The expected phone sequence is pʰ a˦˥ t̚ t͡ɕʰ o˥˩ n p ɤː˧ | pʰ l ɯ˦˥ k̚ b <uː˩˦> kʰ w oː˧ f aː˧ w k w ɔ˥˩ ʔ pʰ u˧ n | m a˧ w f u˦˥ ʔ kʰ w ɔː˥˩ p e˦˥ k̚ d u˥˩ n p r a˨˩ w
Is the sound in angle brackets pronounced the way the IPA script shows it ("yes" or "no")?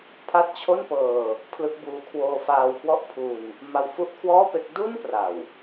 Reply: no